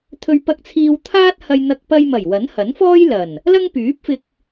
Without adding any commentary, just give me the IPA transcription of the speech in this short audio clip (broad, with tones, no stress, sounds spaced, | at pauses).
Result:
t̪ʰ ɵ˧ ɥ p ɐ˧ k̚ t͡sʰ iː˧ w t̪ʰ aː˥ t̚ h ɐ˧ j n̪ ɐ˧ k̚ p ɐ˧ j m ɐ˨˩ j w ɐ˨˥ n h ɐ˨˥ n f ɔː˥ j l ɐ˨˩ n | l ɐ˥ ŋ p yː˨˥ p̚ f ɪ˧ k̚